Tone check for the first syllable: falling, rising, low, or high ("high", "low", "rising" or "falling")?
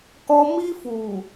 high